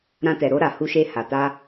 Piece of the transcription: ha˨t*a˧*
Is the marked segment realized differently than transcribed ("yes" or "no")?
no